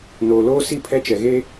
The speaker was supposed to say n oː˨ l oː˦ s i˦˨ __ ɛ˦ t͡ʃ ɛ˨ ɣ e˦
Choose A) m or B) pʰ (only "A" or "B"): B